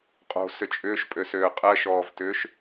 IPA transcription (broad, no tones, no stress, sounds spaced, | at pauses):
qʼ o̤ s ʏ t͡ʃʼ ʏː ʃ pʼ ø s øː qʼ ɜ ʃ ɔː v t ʏː ʃ